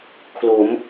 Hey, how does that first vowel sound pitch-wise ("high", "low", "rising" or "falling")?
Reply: rising